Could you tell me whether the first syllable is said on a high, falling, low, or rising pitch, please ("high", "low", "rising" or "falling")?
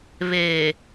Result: low